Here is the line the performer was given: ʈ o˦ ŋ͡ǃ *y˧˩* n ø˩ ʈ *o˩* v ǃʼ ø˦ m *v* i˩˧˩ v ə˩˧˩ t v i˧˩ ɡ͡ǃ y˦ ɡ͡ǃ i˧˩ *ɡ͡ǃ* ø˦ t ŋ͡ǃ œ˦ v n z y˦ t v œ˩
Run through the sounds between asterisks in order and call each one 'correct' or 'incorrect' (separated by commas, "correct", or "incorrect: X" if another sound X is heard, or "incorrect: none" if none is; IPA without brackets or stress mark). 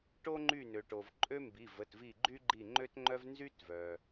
correct, correct, incorrect: b, incorrect: ŋ͡ǃ